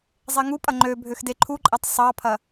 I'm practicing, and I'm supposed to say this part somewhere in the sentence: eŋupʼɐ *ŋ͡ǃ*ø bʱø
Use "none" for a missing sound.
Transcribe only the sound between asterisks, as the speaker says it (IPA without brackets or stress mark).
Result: ŋ͡ǃ